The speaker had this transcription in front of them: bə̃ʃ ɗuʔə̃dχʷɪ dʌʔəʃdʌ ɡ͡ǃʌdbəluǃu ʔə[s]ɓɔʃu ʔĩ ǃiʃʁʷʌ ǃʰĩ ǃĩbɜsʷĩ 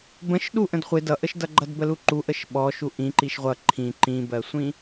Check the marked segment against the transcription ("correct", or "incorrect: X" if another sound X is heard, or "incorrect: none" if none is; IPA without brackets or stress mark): incorrect: ʃ